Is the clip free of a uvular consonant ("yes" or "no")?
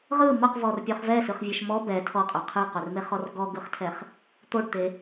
no